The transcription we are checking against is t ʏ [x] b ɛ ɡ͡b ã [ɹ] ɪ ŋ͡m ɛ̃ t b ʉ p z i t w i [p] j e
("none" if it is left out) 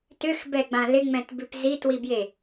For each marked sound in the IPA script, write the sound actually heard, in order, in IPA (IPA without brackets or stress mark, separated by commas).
x, l, b